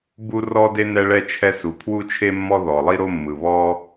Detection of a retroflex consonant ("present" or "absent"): present